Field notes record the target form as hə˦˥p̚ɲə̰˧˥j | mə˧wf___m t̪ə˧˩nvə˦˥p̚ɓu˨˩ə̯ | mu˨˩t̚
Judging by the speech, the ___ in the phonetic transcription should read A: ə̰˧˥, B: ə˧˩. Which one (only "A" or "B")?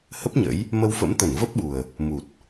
A